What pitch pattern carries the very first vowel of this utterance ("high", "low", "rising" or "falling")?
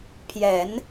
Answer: low